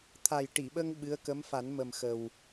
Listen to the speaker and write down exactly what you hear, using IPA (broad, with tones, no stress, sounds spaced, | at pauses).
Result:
t̪ʰ a˨˩ j ʈ i˨˩˨ ɓ ə˧ ŋ ɓ ɨ˧˥ ə̯ k ə˧˥ m f a˨˩˦ n m ə˨˩ m x ə˨˩ w